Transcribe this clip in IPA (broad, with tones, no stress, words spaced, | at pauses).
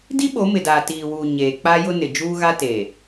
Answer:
di˦ɓo˨˦mɪ˨daː˨ tiː˨wuː˨ ɲeː˨ k͡pa˦jʊ˦ nɪ˨d͡ʒuː˦ɣa˦teː˨